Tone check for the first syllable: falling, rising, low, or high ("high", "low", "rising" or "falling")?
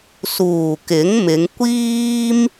low